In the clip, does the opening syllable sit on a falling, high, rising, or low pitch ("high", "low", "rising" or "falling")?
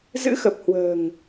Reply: rising